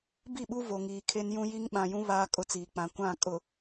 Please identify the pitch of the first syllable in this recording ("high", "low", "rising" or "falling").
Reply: falling